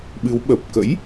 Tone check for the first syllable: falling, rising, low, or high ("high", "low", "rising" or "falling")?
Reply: rising